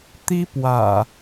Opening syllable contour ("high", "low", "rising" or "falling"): high